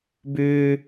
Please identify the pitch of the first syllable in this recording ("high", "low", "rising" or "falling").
high